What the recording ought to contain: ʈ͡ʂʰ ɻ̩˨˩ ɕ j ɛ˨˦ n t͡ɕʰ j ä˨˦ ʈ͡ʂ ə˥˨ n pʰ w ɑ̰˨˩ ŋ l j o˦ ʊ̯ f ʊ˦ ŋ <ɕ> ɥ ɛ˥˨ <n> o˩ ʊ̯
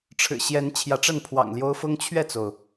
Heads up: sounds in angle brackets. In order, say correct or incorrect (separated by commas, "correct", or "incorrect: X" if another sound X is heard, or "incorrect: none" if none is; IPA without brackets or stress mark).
incorrect: t͡ɕʰ, incorrect: t͡s